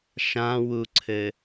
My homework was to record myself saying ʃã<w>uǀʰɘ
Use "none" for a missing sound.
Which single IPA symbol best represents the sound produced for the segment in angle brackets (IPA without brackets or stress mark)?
w